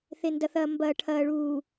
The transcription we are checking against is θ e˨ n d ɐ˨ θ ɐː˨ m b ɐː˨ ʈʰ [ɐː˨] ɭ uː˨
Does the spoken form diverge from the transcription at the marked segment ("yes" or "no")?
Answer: no